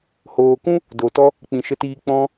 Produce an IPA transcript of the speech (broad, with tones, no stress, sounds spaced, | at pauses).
h oː˨ k ũ˦ | d o˨ t ɔ˦ | k͡p ĩ˨ ʃ ə˧ t iː˧ k͡p ɔ̃˧